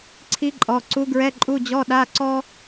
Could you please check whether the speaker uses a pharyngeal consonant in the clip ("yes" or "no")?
no